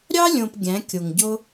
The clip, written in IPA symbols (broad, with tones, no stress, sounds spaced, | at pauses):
ɾʲ ɑ˦ lʲ õ˨ p ɡʲ æ̃˨˦ kʲ o˨ ŋ ɟ o˦